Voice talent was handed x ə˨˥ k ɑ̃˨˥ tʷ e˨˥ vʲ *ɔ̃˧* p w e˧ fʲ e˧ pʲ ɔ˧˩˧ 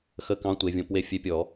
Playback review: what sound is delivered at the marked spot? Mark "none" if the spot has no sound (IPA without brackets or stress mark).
ɔ̃˧